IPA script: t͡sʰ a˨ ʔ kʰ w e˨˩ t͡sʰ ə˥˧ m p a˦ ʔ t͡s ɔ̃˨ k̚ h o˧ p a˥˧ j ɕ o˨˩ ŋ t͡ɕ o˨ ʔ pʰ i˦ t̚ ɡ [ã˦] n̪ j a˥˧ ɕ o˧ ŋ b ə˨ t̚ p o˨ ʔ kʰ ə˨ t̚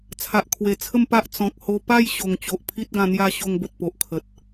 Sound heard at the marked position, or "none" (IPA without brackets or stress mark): ã˧